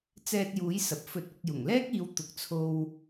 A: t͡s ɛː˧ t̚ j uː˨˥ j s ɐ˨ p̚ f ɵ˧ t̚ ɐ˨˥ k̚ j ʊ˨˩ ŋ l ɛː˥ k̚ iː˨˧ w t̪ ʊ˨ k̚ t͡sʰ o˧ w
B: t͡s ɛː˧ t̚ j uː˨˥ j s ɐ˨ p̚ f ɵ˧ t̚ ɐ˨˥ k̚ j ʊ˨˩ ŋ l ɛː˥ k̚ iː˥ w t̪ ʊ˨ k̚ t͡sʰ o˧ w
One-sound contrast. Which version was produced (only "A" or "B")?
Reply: A